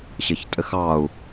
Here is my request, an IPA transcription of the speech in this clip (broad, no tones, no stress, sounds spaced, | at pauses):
ɕ ɘ ç tʼ ɘ x ɑ u̯